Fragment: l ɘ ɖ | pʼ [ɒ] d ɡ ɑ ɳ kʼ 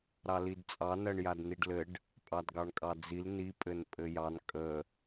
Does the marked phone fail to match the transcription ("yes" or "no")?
yes